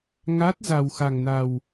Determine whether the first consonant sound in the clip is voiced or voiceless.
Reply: voiced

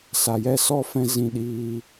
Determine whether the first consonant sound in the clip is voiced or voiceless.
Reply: voiceless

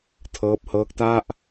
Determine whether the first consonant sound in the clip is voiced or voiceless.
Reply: voiceless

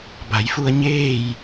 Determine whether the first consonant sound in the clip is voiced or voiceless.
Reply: voiced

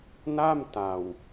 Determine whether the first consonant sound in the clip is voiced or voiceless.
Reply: voiced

